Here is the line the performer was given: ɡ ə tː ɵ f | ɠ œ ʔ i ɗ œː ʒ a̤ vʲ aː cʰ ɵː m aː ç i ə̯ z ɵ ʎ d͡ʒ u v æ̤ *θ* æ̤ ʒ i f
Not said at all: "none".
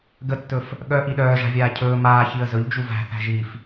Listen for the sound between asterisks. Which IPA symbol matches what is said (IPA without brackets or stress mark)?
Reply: θ